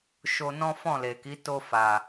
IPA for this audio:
ʃ o˧ n ɔ̃˦ f ɔ̃˦˨ l e˨ k i˨˦ t o˧ f a˨

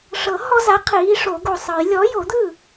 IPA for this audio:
ʂ ɤ˨˩˦ h ɔ˦ z a˨˥ qʰ iː˨˥ ʂ o˨˩˦ ɡ o˨ sˤ ɯ˨˩˦ j lʲ ɔ˨˥ j o˨˩˦ d̪ ɯ˥˩

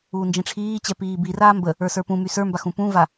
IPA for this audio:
uː n d͡ʒ ĩ ʈ͡ʂʰ iː t͡ɕ ɛ p iː b i r aː m b ə | ə˞ s ə˞ p ũ m y s ə˞ m b a x ũ p ũ v a

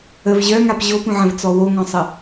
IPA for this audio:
ə v ʑ œ ŋ a p ʑ o p ũ ʕ ə̃ v t͡s ɔ w o ŋ ɔ̃ sˤ ə

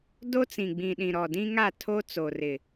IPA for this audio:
d o˦ t͡s ĩ˨ ɡ͡b ĩ˨ ɗ ĩ˨ ɾ ɔ˨ d ĩ˦ ŋ a˦˨ tʰ o˦ t͡s o˨ r ɪ˨

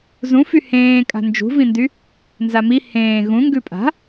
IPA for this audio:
z ũ f y h ẽː kʼ a̤ n d͡ʒ ṳ v ĩ n d y | n z a m i h ẽː ɣ ũ ŋ ɡ ʉ pʼ a̤

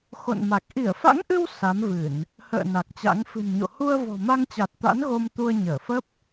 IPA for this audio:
x o̰˧˨ n m a˨˩ k̚ ʔ i˧˩ ə̯ f a̰˧˥ ŋ ʔ ɨ˧ w s a˨˦ m v ɨ˧˩˨ n | h ə̰ː˧˨ n a˨˩ k̚ t͡ɕ a̰˧˥ ŋ f ɨ̤˨˩ n ɲ o̰˧˨ h u˧ ə̯ v ɔ̤˨˩ m a˧ ŋ t͡ɕ a˨˩ t̚ t̪ a̰˧˥ n ɣ o˧ m t̪ u˧ ə̯ ɲ əː˧˩ f ə˦˥ p̚

